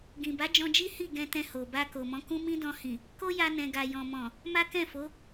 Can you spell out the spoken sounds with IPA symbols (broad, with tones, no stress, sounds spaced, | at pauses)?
ɡ ĩ˨ b a˨˦ d͡ʒ ɔ̃˧ d͡ʒ i˦ h i˦˨ ɡ ɛ̃˧ t ɛ̃˧ h o˨ b a˧ k o˨ m ɔ̃˨˦ k ũ˦ m ĩ˦ d ɔ̃˧ h ĩ˨ | k o˦ j a˧ n ɛ̃˨ ɡ a˨ j ɔ̃˨ m ɔ̃˨ | m a˦ k ɛ̃˦˨ f o˨˦